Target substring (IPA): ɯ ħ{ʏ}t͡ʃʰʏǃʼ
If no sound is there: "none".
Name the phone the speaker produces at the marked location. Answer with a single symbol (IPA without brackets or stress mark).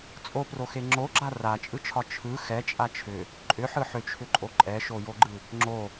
ʏ